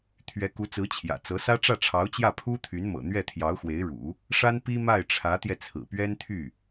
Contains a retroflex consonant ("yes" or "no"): yes